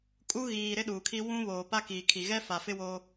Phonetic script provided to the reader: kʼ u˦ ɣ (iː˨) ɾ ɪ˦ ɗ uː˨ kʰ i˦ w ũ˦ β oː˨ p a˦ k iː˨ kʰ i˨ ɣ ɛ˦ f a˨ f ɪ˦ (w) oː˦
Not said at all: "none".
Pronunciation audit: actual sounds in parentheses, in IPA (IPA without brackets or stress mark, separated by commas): iː˨, w